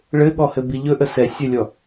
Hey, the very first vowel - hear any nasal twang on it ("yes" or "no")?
no